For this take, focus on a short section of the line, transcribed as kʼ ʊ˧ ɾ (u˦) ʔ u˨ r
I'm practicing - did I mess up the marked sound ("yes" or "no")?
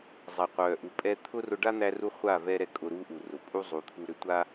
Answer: no